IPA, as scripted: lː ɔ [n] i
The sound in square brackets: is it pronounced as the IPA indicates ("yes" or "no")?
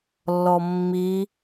no